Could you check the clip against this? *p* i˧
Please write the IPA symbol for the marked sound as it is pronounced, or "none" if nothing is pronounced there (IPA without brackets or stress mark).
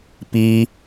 p